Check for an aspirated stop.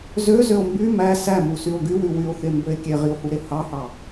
absent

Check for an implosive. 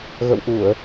absent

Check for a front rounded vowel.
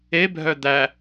present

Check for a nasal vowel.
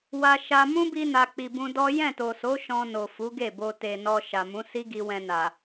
present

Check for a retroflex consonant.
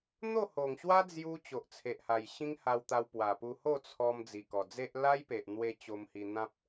absent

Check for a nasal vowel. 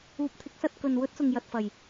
absent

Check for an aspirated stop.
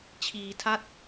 present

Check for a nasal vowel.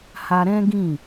present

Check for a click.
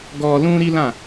absent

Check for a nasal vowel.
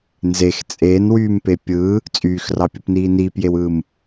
absent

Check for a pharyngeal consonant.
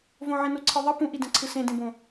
present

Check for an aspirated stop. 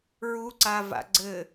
absent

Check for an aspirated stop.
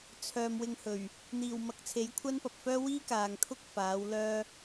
present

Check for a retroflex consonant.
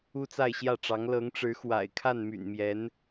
present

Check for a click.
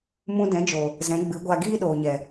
absent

